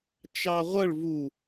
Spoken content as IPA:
t͡ʃ ɑ ʁʷ ʌ ɭ v u

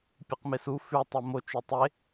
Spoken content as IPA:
pʲ ɨ q m e s u f ʉ tˤ o m o t͡ʃ ʉ tˤ e

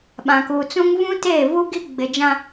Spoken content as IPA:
ɓ ã˨ k uː˨ t͡s ũ˦ ŋ v ũ˦ t eː˦˨ v u˦ ɡ i˦ ɡ͡b ɪ˨ d͡ʒ ã˦

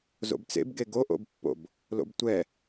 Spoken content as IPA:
z o̰ b t͡s ḛ b ɡ e ɡ o ʔ o̰ b pː o̰ b | l o̰ b tʷ ɛ

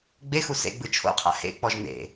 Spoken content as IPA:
ɡ͡b e x u s ḛ ɡ͡b ɯ t͡ʃʰ o̰ qʰ a̰ h ḛ k͡p ɔ ʒ n ḛ

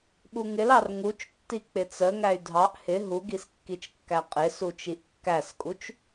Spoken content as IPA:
ɓ u ŋ ɪ l ɑ r ŋ u t͡ʃ tː i k͡p ɪ t͡s ə ŋ æ y̯ dʱ ɑ ʔ h ɪ ɦ u ɡ i s kː i t͡ʃ kː æ qʼ ɪ s u t͡ʃ i ʔ kː æ s kʼ u t͡ʃ

